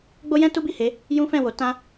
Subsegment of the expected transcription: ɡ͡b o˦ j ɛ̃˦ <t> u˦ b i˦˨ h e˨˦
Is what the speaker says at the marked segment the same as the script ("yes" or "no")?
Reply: yes